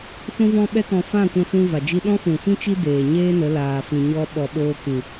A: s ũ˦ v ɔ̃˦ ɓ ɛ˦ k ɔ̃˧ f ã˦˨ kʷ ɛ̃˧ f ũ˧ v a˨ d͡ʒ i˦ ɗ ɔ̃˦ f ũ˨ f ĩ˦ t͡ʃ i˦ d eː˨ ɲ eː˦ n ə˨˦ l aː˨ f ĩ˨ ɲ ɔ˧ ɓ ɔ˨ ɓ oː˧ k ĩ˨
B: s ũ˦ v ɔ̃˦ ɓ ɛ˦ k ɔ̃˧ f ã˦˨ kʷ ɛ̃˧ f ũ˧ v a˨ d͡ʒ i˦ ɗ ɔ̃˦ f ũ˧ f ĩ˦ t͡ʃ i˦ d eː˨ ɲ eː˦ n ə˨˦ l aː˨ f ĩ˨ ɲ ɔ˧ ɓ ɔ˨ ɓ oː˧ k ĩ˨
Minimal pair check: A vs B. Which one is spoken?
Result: A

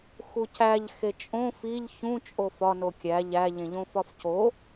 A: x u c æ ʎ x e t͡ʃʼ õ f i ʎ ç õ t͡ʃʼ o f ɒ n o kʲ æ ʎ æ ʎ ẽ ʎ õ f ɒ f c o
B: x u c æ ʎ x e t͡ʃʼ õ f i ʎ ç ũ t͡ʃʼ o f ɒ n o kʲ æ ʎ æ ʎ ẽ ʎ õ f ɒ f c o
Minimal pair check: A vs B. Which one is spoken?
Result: B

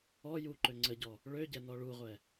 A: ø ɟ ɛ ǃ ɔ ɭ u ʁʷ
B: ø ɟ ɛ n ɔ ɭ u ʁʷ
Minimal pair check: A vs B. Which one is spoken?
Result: B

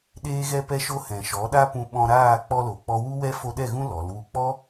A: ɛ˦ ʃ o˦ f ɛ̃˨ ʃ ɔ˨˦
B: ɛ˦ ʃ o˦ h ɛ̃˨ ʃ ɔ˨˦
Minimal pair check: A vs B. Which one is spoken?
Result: B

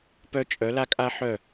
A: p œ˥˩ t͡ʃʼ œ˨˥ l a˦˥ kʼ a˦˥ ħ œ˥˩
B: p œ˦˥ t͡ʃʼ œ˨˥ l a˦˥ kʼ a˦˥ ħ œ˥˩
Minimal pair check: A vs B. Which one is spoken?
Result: B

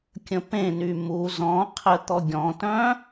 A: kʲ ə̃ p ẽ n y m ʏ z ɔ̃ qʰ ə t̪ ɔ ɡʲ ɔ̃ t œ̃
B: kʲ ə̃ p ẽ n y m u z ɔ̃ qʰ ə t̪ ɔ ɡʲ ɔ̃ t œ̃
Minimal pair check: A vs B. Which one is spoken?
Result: B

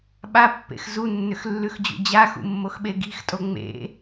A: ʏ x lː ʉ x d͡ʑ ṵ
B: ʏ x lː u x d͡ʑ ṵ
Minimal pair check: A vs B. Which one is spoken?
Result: A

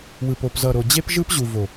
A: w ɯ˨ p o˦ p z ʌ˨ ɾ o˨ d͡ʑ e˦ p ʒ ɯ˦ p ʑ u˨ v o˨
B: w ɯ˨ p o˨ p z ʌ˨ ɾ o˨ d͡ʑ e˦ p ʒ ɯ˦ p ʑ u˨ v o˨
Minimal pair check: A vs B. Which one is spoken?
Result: B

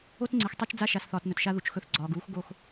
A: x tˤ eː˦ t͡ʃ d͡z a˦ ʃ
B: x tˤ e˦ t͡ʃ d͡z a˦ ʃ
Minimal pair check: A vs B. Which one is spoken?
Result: B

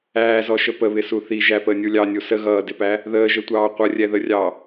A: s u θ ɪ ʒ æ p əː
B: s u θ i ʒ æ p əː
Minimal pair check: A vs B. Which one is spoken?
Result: B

